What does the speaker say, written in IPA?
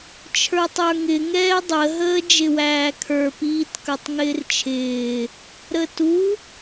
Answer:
t͡ʃʰ ə˞ tˤ ə˞ ŋ ɪ ŋ ɛː dˤ ə ɦ əː d͡ʒ ɪ w æː kʰ ə˞ p iː t k ə˞ tˤ ŋ ɪː r t͡ʃʰ ɪː | ɾ ə t u

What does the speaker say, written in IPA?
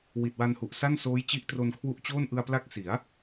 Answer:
w i˨˩ t̚ w a˧ n h u˨˩ ʔ s a˥˩ n s oː˦˥ j t͡ɕ i˦˥ ʔ t r o˧ n kʰ w u˦˥ ʔ t͡ɕ oː˥˩ n ʔ ɯ˧ a̯ p l a˦˥ k̚ s i˩˦ a̯

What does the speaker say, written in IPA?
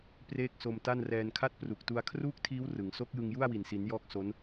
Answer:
p r eː˥˩ k̚ s o˧ m t a˥˩ n r ɛː˧ n kʰ a˥˩ t̚ p r u˨˩ k̚ t u˧ a̯ kʰ r uː˥˩ k̚ tʰ iː˦˥ w r ɯ˩˦ ŋ s o˦˥ k̚ j ɯ˧ ŋ j u˥˩ a̯ w i˨˩ n s i˩˦ n j ɔː˦˥ k̚ s o˦˥ n

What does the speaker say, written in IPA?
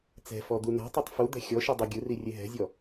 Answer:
t͡s ɛ̤ f ɔ d̪ u n a̤ tˤ o tˤ f u d̪ ɛ̤ xʲ ɔ ʃ i dˤ ɤ ɡʲ ɯ r i rʲ e ɦ ɛ̤ zʲ ɔ

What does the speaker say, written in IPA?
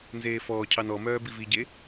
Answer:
n z eː f ɔː cʰ ɑ n ɔ m œː b i v i ɟ e

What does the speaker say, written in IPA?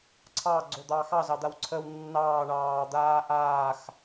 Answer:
ǀʰ ɑ ɡ͡ǀ o d̪ ɑː x ɑ z ɑ d̪ a w ǀʰ ə w nː ɑː ɳ ɑː d̪ aː ʔ aː x

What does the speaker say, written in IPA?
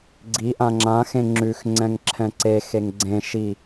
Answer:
ɡ͡ǀ i ʔ ã ŋ͡ǁ ã x ẽ ŋ͡ǁ ʉ x ŋ͡ǀ ɛ̃ ŋ ǁʰ ɛ̃ ǀ e x e ŋ ɡ͡ǀ ẽ ʃ i

